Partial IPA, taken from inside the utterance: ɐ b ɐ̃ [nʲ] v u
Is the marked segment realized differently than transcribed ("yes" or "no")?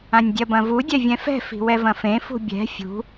yes